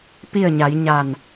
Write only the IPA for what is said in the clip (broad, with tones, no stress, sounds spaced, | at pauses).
p i˥˨ ə̯ ɲ a˩˧ j ɲ a˧˩ n